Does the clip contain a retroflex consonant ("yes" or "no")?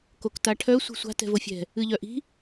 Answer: yes